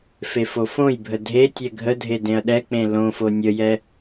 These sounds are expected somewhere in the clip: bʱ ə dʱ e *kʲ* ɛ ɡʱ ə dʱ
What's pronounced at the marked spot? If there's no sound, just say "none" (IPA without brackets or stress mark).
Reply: tʲ